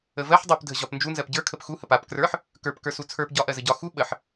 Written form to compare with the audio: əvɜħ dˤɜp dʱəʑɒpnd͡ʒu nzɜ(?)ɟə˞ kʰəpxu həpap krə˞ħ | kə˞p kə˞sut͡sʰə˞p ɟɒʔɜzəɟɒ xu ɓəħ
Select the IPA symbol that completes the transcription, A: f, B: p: B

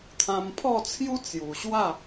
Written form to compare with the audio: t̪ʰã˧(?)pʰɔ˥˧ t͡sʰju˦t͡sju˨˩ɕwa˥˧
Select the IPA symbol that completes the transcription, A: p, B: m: B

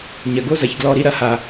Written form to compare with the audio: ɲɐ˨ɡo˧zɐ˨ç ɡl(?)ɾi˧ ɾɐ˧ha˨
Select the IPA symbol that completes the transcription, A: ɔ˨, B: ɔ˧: B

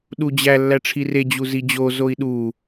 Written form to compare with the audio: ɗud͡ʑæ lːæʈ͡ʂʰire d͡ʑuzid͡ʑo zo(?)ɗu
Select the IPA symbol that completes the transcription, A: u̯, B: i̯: B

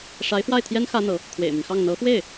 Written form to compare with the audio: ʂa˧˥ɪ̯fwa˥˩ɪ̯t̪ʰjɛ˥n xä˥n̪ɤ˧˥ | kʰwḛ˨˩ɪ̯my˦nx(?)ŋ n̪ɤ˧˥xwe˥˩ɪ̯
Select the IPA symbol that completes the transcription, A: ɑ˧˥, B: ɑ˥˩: B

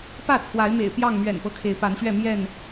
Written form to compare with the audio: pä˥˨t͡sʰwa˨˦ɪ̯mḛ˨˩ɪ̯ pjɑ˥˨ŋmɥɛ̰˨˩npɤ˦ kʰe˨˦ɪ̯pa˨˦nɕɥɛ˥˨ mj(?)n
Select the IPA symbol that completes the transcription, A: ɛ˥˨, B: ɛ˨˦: A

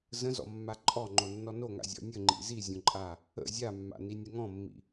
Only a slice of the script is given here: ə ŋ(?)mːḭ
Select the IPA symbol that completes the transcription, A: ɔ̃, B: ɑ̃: A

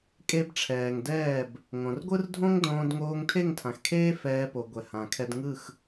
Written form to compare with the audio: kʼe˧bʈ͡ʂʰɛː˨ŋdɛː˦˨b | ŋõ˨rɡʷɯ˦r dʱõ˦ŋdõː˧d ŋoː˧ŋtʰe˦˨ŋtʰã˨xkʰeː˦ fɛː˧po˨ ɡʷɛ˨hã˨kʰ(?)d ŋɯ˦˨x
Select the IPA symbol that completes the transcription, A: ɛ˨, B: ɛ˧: B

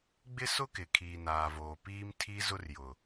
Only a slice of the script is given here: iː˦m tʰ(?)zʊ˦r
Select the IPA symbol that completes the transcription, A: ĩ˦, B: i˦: B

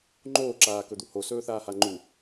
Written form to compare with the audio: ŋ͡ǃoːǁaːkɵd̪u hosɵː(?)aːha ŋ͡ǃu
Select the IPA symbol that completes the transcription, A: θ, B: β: A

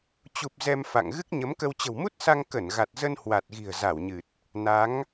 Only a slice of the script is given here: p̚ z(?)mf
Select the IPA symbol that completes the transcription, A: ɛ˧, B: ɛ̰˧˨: A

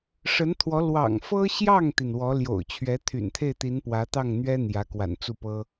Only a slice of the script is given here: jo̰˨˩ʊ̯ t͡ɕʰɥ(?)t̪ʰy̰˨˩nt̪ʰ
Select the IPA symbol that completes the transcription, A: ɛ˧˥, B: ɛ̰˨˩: A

